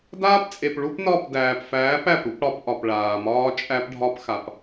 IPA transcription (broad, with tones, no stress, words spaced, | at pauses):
daː˦pt͡sʼe˨p ɭu˦pnɒ˦˨p dæː˨pfæː˨˦p æ˨pɾu˦p ɽɒ˨˦pʔɒ˨pɭaː˨mɒː˦ t͡ʃʼæ˦pɖʱɒ˦pxa˨p